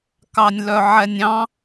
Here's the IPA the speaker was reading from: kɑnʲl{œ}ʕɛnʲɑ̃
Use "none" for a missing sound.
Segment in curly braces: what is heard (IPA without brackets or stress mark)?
œ